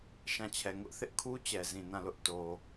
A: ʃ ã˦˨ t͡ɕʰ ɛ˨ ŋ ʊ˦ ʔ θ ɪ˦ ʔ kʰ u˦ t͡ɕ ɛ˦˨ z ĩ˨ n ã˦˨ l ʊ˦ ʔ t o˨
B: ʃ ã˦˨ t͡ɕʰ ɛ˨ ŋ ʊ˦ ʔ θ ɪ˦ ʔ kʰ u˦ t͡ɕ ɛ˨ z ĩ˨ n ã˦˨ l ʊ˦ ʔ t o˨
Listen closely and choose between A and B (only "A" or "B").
B